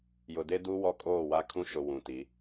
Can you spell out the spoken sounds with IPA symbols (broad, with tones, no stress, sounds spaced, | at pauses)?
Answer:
j ʊ˨ d e˦ d u˦ w ɔ˦ kʼ oː˦˨ w a˦ kʰ ũ˦ ʃ ʊ˨ w ũ˨ t i˨˦